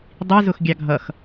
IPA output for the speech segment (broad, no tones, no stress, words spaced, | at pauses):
dˤizʊx ɡʲɑɡʱʌx